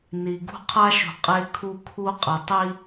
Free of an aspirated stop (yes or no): no